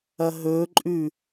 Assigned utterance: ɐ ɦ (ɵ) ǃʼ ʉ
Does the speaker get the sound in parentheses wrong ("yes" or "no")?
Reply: no